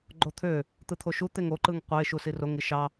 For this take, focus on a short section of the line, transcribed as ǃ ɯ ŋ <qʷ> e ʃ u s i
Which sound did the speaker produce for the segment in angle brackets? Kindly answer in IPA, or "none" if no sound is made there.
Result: qʷ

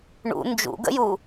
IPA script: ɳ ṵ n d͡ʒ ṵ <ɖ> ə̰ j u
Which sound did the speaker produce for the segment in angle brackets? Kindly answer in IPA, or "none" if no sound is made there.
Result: ɡ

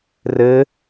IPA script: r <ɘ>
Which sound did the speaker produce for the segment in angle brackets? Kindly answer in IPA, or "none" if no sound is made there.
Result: ɘ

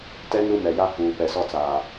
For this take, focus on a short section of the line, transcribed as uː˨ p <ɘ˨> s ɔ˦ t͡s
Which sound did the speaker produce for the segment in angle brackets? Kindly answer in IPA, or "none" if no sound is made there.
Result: ɛ˨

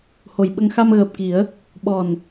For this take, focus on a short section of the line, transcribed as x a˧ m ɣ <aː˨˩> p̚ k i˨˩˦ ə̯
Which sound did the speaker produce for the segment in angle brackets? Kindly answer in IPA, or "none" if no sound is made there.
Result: əː˨˩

